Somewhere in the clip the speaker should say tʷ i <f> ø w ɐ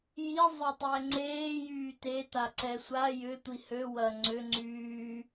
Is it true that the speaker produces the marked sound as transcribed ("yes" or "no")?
no